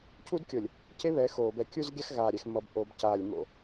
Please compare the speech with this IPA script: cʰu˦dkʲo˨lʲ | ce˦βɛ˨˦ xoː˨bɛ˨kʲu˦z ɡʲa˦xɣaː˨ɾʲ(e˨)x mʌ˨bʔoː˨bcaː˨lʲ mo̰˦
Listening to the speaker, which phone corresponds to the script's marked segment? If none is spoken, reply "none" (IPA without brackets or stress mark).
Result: ɛ˨